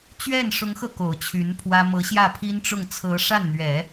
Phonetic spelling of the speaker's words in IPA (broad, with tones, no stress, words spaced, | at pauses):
t͡ɕɥɛ˥˩nʂʊ˧˥ŋxɤ˧ ko˨˩ʊ̯t͡ɕʰy˧˥npʰwä˥ mɤ˧˥ɕjä˥˩pʰi˥nʈ͡ʂʊ˥˩ŋ t͡sʰɤ˧˥ʂa˥˩nn̪ɥɛ˨˩˦